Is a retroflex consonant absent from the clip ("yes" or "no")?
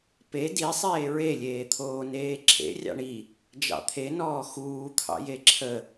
no